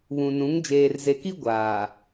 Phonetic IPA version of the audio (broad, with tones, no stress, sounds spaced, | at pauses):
β ũ˨ n ũ˨˦ ŋ d͡ʒ eː˨ r z e˨ k i˦ ɡʷ aː˨